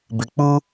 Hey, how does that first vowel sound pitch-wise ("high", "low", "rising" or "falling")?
low